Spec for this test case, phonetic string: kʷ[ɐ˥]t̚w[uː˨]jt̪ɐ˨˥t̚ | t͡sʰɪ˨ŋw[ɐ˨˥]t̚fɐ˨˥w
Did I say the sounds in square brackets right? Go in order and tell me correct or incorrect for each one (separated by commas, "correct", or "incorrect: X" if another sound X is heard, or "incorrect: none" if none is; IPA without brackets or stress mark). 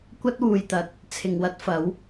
correct, correct, incorrect: ɐ˥